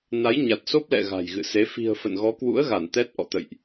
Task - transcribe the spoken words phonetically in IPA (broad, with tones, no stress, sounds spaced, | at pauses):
n a˨˦ j ɲ a˨˩ t̚ s o˦˥ p̚ l ɛ̰˧˨ ɣ a̤˨˩ j ɣ ɨ̰˧˨ s e˨˦ f i̤˨˩ ə̯ f ə̰˧˨ n ɣ ɔ˨˦ k w ṵ˧˥ ə̯ ɣ a˧˩ n t̪ ɛ˦˥ t̚ ʔ ɔ̰˧˨ t̪ ə̰˧˨ j ʔ